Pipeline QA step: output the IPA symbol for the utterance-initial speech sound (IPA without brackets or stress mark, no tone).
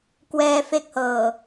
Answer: k